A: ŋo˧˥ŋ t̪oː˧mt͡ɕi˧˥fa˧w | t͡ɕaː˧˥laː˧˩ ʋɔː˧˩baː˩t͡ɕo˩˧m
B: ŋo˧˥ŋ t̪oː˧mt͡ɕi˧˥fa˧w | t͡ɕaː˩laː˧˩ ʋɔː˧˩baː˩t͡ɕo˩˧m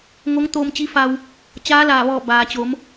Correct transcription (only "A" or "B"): A